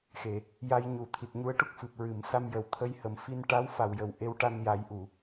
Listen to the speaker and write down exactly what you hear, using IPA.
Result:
x e˨˩˨ | j a˧ j ɲ u˨˩˦ t̪ʰ i˨˩ t̚ ɲ u˧˥ ə̯ ʈ u˦˥ k̚ f ɨ˨˩ p̚ ɹ ɨ˨˩˨ m s a˧ m j ə˨˩ w t̪ʰ ə˧ j h ə˨˩˦ m f i˧ n ʈ a˧˥ w f a˨˩ w j ə˨˩ w ʔ e˧˥ w ʈ a˧ n j a˨˩˦ j ʔ u˨˩˨

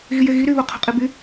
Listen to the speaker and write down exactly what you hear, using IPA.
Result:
ɣ i j e ɣ i ɾ y β o qʰ o̤ qʼ i b y

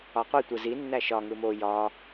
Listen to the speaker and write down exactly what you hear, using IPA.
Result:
ɒ qʷ i tʷ ɯ z i nː æ ʃ ɒ ŋ ɯ m o j ɒ

